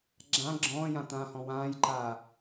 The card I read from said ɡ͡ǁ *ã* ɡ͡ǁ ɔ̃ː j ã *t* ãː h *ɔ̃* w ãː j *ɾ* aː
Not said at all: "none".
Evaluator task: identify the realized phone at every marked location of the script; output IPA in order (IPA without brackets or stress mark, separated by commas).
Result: ã, t, ɔ̃, ǃ